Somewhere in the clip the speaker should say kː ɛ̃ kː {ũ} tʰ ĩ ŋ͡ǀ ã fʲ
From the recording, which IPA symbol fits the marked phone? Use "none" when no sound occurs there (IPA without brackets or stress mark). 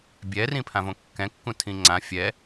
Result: ũ